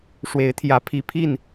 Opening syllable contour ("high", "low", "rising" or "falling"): rising